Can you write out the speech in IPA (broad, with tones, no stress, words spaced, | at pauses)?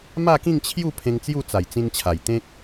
ma˥˧kĩ˥˧ŋt͡ɕʰju˥˧ pʰẽ˧ŋt͡sju˥˧t͡sa˨˩j t͡sĩ˧nt͡ɕʰa˨˩jt̪ẽ˦k̚